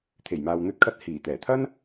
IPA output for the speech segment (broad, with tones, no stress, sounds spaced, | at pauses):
t̪ʰ e˨˩ j m aː˨ w n̪ ɵ˧ t̚ kʰ ɐ˧ t̚ h iː˨˩ t̪ ɛː˨˩ t̪ʰ ɐ˥ n